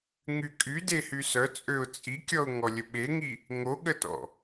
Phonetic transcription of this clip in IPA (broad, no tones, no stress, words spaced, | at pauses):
ŋykʼy dehysœ t͡sʼøʊ̯t͡sʼikʲɔʊ̯ ŋɔlʲəɓeŋi | ŋoɠətɔ̰